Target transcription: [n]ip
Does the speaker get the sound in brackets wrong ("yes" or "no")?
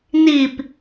no